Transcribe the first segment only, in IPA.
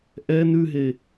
ʔ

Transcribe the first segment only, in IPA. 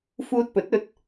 f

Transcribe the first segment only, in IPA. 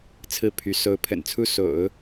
t͡sʰ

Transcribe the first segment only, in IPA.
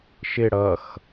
ʃ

